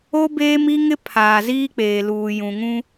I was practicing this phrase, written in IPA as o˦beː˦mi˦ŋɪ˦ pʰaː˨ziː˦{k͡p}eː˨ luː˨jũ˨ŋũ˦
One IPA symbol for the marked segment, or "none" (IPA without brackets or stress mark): k͡p